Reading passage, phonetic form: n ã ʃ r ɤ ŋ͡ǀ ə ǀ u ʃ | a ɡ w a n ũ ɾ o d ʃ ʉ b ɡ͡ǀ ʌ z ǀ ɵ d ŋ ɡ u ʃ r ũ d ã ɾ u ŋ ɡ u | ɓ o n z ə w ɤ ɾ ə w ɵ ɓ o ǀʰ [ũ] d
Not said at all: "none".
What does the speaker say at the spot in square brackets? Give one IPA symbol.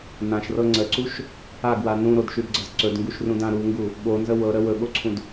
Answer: ũ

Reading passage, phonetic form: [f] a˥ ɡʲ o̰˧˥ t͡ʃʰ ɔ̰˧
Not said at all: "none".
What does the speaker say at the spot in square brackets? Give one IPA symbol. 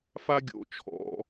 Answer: f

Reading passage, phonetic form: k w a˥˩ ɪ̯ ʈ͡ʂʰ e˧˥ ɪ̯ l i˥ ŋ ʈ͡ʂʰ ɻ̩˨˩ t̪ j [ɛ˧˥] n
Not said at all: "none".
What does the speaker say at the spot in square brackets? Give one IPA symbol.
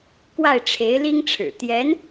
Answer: ɛ˧˥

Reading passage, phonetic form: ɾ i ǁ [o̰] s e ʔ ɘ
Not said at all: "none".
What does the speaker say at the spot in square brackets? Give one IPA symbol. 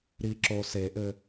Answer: o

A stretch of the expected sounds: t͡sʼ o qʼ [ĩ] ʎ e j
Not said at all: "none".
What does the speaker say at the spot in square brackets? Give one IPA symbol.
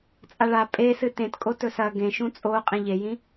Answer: ĩ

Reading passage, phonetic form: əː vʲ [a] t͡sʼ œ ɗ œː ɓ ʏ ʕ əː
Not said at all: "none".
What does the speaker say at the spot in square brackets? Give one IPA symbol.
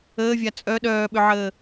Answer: a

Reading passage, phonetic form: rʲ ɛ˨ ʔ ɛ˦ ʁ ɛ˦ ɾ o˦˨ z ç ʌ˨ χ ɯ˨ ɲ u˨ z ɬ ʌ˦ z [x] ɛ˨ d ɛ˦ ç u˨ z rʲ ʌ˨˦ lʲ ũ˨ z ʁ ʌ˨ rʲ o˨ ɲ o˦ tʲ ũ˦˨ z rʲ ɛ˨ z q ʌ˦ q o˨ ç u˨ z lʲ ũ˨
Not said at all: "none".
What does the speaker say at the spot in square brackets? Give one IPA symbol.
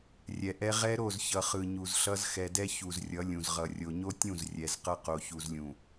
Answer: x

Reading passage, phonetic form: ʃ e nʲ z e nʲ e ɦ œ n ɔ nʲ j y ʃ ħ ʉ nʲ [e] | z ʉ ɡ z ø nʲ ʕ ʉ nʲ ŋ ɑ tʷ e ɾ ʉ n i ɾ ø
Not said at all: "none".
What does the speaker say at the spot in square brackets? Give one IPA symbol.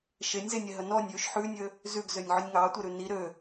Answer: ø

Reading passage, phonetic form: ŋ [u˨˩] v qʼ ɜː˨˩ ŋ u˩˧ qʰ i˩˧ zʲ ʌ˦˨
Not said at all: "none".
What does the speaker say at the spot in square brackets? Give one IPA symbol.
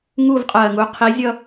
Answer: u˦˨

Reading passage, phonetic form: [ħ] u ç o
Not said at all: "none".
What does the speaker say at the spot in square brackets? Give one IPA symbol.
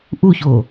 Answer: ʔ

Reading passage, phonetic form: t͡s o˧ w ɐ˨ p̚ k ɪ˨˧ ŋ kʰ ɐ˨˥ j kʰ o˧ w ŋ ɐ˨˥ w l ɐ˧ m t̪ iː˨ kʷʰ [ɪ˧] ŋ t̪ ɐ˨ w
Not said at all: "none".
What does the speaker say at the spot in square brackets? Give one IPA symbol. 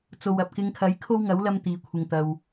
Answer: ɪ˨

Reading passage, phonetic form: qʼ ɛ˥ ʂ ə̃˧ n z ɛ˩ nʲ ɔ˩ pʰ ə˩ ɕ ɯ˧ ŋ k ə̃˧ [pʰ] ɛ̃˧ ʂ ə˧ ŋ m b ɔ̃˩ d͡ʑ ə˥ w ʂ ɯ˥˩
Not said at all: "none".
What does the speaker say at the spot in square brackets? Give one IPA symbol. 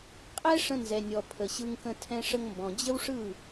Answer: tʰ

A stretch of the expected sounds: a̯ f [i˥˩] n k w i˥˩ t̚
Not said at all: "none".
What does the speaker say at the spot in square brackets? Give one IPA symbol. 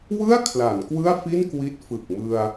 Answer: i˥˩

